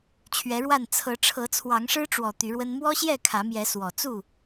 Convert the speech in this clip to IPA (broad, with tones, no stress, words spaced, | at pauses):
t͡ɕʰɥɛ˨˦ɻwa˥˨n t͡sʰɤ˨˦ ʈ͡ʂʰɤ˨˦t͡sʰwɑ˨˦ŋʂɻ̩˦ʈ͡ʂwɔ˨˩ t̪y˨˦ɻwə˦n mwɔ˦ɕjɛ˥˨ kʰä˨˦mjɛ˨˦ swɔ˨˩ t͡su˥˨